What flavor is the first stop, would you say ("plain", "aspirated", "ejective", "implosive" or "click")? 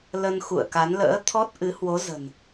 plain